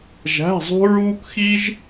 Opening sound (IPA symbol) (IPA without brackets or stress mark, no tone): ʒ